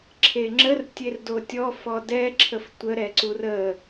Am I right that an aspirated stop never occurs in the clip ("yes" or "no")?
no